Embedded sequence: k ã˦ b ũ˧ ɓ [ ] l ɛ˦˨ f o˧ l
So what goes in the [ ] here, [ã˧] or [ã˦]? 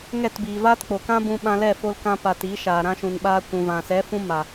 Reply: ã˧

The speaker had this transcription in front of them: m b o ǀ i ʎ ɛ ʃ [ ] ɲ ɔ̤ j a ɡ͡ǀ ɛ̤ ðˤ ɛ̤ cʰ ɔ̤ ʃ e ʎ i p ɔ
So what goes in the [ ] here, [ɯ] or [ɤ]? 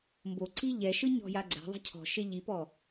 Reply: ɯ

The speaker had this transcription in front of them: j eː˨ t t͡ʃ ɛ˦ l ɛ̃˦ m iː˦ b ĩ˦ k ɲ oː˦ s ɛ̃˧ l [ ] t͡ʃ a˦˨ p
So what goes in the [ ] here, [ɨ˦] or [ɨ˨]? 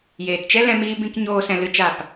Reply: ɨ˦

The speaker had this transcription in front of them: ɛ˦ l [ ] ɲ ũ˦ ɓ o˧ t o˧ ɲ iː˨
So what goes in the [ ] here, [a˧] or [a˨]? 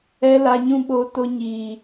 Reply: a˧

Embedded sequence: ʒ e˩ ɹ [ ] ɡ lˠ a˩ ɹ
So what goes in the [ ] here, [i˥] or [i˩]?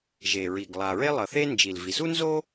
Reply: i˩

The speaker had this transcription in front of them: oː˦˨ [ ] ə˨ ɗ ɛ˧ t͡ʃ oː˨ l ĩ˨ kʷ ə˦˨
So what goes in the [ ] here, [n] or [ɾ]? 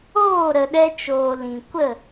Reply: ɾ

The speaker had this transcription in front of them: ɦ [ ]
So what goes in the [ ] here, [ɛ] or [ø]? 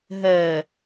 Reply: ɛ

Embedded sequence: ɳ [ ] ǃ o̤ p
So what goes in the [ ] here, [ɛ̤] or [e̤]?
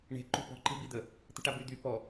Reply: e̤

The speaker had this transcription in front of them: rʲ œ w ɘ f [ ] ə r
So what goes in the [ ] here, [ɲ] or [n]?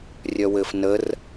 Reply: n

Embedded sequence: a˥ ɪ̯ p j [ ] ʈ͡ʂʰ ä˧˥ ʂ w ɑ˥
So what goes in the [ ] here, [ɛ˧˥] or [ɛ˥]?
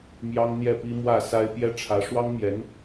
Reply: ɛ˥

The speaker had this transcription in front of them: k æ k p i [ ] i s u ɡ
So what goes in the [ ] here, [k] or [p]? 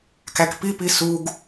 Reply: p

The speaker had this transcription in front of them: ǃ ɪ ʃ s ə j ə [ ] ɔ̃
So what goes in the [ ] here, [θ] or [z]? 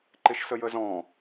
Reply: z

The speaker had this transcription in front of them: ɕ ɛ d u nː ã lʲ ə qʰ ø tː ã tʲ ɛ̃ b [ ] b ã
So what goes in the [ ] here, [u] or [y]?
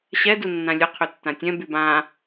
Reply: y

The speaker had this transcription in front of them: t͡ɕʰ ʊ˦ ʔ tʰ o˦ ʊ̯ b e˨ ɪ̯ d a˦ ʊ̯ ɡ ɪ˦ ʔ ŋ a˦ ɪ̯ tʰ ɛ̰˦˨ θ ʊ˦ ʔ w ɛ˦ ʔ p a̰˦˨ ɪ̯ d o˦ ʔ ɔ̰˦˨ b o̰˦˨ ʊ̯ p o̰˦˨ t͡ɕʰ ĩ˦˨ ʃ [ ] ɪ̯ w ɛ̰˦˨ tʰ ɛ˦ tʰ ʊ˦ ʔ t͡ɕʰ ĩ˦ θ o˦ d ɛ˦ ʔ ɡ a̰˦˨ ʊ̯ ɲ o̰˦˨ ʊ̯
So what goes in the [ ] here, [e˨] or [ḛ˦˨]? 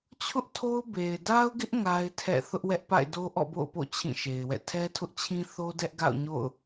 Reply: e˨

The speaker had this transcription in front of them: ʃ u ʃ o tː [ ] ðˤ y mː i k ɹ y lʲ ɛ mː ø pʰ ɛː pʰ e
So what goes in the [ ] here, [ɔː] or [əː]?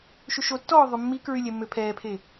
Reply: ɔː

